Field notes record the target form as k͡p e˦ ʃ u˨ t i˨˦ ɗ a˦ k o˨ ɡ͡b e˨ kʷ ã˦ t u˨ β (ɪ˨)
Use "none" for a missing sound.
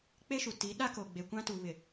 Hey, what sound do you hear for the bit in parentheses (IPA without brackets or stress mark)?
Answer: ɪ˨